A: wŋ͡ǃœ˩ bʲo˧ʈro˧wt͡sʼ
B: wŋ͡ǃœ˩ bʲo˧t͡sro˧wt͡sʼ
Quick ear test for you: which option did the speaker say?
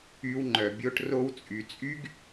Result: A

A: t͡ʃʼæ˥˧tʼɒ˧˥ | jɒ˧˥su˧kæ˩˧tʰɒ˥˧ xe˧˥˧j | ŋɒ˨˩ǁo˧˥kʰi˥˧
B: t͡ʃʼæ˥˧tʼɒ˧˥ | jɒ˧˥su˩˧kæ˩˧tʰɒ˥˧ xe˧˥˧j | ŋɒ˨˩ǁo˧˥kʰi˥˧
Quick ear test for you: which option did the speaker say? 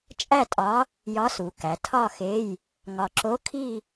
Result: B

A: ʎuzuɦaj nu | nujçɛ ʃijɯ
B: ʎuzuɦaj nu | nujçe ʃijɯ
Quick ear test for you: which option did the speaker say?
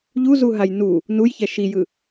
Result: A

